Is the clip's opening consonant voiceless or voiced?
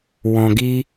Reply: voiced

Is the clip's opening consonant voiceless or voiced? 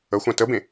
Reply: voiceless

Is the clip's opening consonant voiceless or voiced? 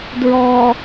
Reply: voiced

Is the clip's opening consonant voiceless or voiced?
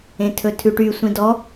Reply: voiceless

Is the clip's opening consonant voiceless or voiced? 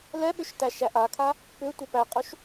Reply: voiced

